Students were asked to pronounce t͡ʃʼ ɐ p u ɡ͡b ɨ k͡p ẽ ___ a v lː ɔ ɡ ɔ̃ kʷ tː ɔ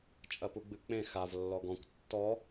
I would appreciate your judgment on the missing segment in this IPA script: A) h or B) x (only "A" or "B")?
B